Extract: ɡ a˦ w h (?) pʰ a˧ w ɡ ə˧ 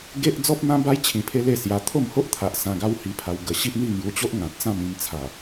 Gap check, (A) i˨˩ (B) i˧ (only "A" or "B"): B